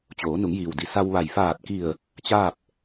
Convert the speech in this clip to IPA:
t͡ɕ oː˩˧ n u˩˧ ŋ j iː˩ w d i˩˧ s a˧ w ʋ a˧˩ j f aː˧˩ t̚ k i˧˩ ə̯ | t͡ɕ aː˥˨ p̚

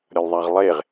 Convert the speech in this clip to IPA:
ɾʲ ɒ lʲ ðˤ æ ʁ lˠ e ʁ

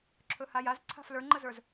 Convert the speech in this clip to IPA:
ǁʰ ɵ h a j a z ǀʰ a̤ f l ə˞ ŋ͡ǃ ə z ə˞ z

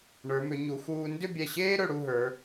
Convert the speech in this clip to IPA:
ɳ ə˞˩˧ m ʏ˩˧ ɲ u˩˧ x uː˧ n d ʏ˥˧ bʲ ɛ˧˩ ɕ eː˥ ɾ ɵ˧ ɽ u˥˧ ɦ ə˞˩˧

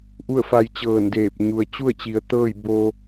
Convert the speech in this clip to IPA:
ʔ u˥˨ ə̯ f a˧ j t͡ɕ ɤː˧˩ n d eː˧˩ p̚ ɲ u˩ ə̯ t͡ɕ u˥˨ ə̯ t͡ɕ i˩˧ ə̯ t̪ ɤː˥˨ j b o˧

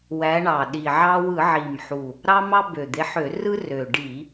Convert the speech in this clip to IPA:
w æ˨˦ ɳ ɑ˨˩ ɗ i˨˩ ʕ ɑ˦ w ɯ˧˩˧ ʕ i˨˩ m ħ u˨˩ | ɾ ɑ˦ m ɑ˦ b ø˨˩ d̪ e˨˦ ħ ø˧˩˧ r ɯ˦ r ø˨˩ ɖ i˧˩˧

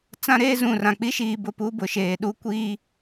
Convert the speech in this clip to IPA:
t͡s ã˦ ɾ eː˦ z ũ˨ r ã˨ k͡p i˦ ʃ iː˨ b ʊ˦˨ p u˦ b ʊ˨˦ ʃ eː˨ ɗ u˦ kʷ iː˦

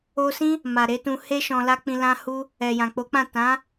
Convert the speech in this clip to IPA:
o˧ s ĩ˦ | m a˨ ɾ e˨˦ t ũ˧ h e˦ ʃ ɔ̃˧ l a˦ k͡p ĩ˧ l ã˦ h u˦ | ɛ˨ j ã˨ k͡p o˨˦ k͡p ã˦˨ t ã˨˦

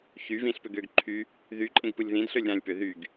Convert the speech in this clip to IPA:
ç y v ĩ ɬ p ø ɡ ø ɡ ǃʰ y | ð y ǃʼ ẽ ɡ p ɯ lʲ ð ĩ d ɬ ø lʲ ɾ ã lʲ p ø ð y ɡ

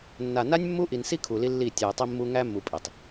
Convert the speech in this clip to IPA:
nː a˨ n a˦ nʲ mː u˦ ʔ i˨ n s i˦ kʰ u˨ l i˦ lː i˦˨ tʲ æ˨ e̯ tˤ i˦ mː u˦ ŋ æ˦ mː u˨ pʼ i˨ tˤ

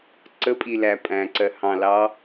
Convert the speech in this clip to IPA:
ǀ ə pʼ i l æ pʼ æ̃ ǀ ɜ h ɑ̃ l ɑ

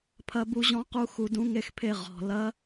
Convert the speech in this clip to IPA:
pʰ ɐ˦˥ b u˦˥ ʑ ɔ̃˦˥ q u˦˥ x u˧ d ũ˦˥ ŋ e˥˨ x pʰ e˥˨ ʁ ɔ̤˩˧˩ l ɐ˦˥

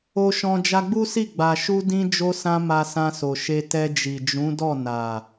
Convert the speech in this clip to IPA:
o˧ ʃ ɔ̃˧ d͡ʒ a˧ ɡ͡b u˦ s i˦˨ ɡ͡b a˨ ʃ u˧ d ĩ˧ d͡ʒ o˧ s ã˧ m a˧ s ã˧ s o˨ ʃ e˧ t ɛ˧ d͡ʒ i˨ d͡ʒ ũ˨˦ d ɔ˦˨ n a˨

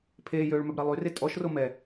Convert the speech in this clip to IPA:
pʰ eː j øː ɭ m œ b ɾ a lˠ y r e tʼ ɔ ʃ r o m ɛ

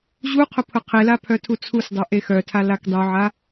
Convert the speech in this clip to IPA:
ʑ u qʰ ʊ pʰ ʊ qʰ e l a pʰ œ tʰ u t͡sʰ u s dˤ ø ʔ e x œ tʰ a l a k dˤ u ʕ a

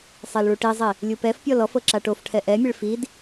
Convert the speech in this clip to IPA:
sˤ e l ɭ u ʈ i zˤ i | lʲ u p ɛ f pʲ ɔ l ɔ f ɤ ǁ a ʈ o f ʈʰ ɛ ʔ ɛ mʲ e ɭ f i d

